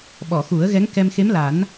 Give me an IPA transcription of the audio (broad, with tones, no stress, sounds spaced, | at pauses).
ɓ ɔ˨˩˨ x u˨˩˦ ə̯ ɣ ɛ˧˥ ŋ k ɛ˧ m x e˧˥ m l a˨˩˦ n